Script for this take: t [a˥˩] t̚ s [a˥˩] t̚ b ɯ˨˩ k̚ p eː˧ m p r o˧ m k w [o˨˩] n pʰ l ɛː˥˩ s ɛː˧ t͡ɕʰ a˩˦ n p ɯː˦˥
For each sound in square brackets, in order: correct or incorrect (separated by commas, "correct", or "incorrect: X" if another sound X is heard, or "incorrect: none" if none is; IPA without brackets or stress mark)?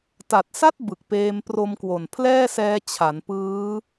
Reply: incorrect: a˨˩, correct, correct